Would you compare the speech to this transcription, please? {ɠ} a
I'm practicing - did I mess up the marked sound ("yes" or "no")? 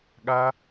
no